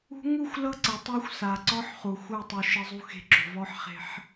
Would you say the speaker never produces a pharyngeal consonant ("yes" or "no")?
no